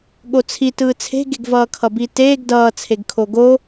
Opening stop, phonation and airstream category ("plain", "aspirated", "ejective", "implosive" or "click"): implosive